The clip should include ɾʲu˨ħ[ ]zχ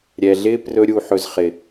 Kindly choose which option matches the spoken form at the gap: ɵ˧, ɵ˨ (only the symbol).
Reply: ɵ˨